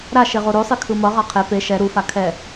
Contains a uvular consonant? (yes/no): yes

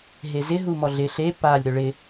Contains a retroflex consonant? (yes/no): yes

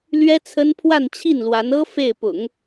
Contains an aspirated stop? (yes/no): yes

